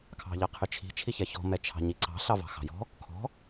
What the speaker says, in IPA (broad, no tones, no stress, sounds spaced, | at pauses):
kʰ ɑ̤ ʎ ɑ qʰ ʏ t͡ʃʰ i̤ t͡ʃʰ i ç ɛ ç ɔ̤ m ɛ t͡ʃʰ ɑ̤ ɲ i ǀ ɑ̤ ɬ ɑ v ɑ̤ x ɑ̤ j ɔ̤ | kʰ ɔ̤